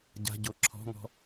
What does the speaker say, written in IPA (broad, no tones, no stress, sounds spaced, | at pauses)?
ɟ a̤ ɟ o ǁʰ ɔ̤ ŋ ɔ̤